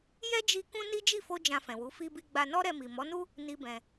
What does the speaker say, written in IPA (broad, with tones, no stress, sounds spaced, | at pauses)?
j ɛ˦ d͡ʒ i˧ k ũ˦ n i˦ d͡ʒ i˦˨ f o˧ d͡ʒ ã˧ f ɛ̃˨ w u˨˦ f i˧ b i˧ ɡ͡b a˧ n ɔ˦ ɾ ɛ˧ m i˨ m ɔ˨˦ n u˦ | n i˦ b ɛ̃˧